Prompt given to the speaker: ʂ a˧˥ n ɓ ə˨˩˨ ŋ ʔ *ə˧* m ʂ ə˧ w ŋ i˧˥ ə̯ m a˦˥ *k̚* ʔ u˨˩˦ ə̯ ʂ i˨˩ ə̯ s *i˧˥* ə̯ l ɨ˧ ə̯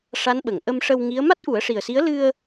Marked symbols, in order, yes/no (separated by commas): yes, no, yes